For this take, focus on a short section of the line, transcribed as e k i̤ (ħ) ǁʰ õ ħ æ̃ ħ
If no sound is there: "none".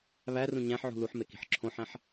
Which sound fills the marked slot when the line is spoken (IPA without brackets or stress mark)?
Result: ħ